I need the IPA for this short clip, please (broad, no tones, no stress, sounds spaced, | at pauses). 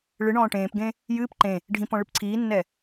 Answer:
ɭ ɨ ɳ ɔ̃ː ʈ ẽː p ɡ ẽ | j ɨː p ǃ ẽ | ɖʱ ĩ p ɔ̃ ɭ ɨ p ǀʰ iː nː ɛ